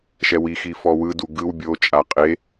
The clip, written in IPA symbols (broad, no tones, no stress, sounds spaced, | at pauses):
ʃ ɛ w i x i f ɔ w ɯ d u ɡ ɯ w bʲ o t͡ʃʼ a qʼ e